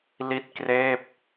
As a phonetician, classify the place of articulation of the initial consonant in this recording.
alveolar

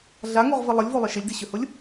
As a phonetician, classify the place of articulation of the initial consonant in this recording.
alveolar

